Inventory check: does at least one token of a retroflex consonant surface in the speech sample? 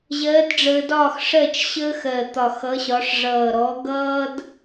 yes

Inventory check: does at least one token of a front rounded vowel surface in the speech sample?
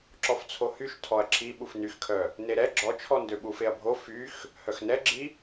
yes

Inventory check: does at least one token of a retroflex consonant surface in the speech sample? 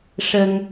yes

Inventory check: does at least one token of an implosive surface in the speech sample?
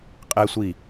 no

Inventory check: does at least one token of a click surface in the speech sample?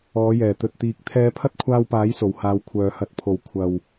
no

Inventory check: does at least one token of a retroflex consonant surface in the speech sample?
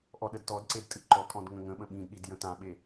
no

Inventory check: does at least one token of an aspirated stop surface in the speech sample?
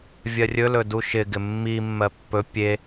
no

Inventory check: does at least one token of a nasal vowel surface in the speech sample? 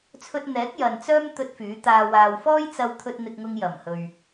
no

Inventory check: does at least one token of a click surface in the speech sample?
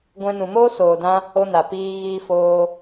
no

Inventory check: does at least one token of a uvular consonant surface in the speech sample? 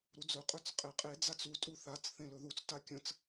yes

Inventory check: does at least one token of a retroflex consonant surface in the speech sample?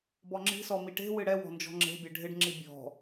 yes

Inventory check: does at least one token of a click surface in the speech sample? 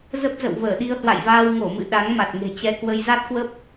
no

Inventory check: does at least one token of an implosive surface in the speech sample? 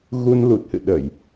yes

